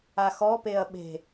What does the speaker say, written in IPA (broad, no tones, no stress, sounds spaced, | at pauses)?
a x ɔ p e ɐ̯ ɓ e̤